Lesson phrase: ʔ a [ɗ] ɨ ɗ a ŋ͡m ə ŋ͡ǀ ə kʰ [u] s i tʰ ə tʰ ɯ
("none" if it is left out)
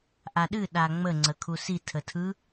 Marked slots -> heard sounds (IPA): ɗ, u

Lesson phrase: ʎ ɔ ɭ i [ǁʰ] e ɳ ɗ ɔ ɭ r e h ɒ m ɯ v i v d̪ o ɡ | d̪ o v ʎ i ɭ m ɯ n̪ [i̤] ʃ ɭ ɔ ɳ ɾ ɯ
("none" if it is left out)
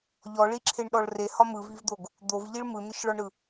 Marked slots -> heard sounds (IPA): ǁʰ, i

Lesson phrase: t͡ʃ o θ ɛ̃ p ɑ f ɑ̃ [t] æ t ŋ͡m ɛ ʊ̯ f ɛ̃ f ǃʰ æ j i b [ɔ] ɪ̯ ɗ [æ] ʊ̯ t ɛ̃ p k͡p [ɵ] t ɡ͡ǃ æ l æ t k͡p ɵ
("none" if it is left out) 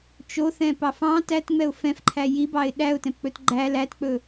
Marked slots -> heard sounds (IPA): t, ɑ, æ, ɵ

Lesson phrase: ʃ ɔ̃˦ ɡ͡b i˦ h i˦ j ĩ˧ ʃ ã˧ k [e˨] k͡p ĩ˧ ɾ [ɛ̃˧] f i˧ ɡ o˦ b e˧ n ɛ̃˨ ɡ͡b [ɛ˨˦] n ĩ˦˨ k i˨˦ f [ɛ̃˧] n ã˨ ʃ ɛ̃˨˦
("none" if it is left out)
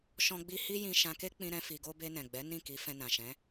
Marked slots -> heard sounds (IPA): e˦, ɛ̃˦, ɛ˨˦, ɛ̃˧

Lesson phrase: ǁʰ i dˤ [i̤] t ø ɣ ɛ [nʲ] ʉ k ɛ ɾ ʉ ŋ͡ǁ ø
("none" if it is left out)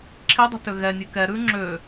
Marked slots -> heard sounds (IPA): i̤, nʲ

